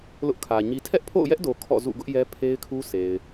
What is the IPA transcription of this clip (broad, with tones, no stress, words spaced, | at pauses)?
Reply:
lʊ˦ʔkʰä˨ɲi˦ tʰɛ˦ʔpʰo̰˦˨ʊ̯jɛ˦ʔdo˨ kʰɔ̰˦˨zṵ˦˨ ɡʊ˦ʔjɛ˦ pʰe˦ɪ̯kʰu˦se˨ɪ̯